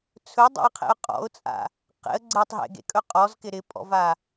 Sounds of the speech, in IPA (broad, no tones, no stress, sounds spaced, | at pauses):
t͡sʰ ɵ dˤ ḛ ə̯ qʰ ḛ ʊ̯ qʼ ɔ̰ ʊ̯ t͡sʼ a̰ | q ḛ ə̯ ɡ͡ǀ e tˤ ɦ ḛ ɡ ḛ kʼ ɵ qʼ ɔ z k ɪ ɾ ɪ pʼ ɔ̰ v a